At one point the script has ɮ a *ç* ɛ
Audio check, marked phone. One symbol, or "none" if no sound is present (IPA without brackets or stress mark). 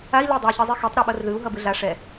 ʂ